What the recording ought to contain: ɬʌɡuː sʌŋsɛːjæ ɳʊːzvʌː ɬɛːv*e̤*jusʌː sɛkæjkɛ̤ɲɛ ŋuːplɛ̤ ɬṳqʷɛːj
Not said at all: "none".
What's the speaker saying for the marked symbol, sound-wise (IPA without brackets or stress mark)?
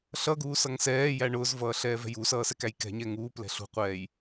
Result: ɛ̤